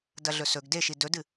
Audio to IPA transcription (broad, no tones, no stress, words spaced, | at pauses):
dɐɮɵsɵɡ deʃi dɵdɨ